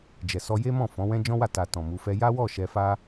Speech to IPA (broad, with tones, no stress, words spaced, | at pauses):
d͡ʒɛ˨sɔ˧je˦ mɔ̃˦˨fɔ̃˨˦wɛ̃˦ d͡ʒɔ̃˦wa˦˨ ta˨ tɔ̃˨ mu˨˦fɛ˦ ja˦wɔ˦˨ ʃɛ˧fa˦